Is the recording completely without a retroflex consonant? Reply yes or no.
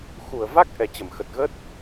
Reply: yes